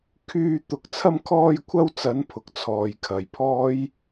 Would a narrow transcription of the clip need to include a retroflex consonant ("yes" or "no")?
no